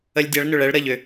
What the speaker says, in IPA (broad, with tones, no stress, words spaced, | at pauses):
ə˧lʲdʲa˨˥ɭnʏ˩ɭɛ˨˥ɭ ɾə˧˩ʎʏ˩